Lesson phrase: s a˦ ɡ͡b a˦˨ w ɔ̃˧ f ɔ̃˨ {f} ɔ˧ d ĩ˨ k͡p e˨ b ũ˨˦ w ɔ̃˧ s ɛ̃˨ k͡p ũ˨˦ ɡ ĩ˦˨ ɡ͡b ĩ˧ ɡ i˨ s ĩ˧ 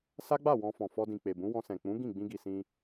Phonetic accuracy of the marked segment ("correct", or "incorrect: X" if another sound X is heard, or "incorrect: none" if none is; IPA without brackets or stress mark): correct